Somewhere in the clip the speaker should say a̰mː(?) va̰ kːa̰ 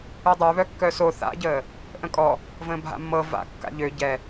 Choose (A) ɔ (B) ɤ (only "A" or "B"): B